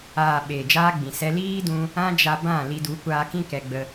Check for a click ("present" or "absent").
absent